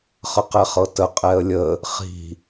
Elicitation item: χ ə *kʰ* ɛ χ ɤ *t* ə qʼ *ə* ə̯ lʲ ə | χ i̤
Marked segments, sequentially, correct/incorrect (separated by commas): incorrect, correct, incorrect